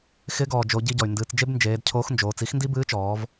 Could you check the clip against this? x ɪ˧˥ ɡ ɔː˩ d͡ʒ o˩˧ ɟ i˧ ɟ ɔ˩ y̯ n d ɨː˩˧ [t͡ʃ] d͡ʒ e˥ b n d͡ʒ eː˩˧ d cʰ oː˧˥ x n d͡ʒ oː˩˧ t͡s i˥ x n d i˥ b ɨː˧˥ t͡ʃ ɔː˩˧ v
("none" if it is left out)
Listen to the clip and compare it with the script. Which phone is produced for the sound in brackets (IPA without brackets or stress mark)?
t͡s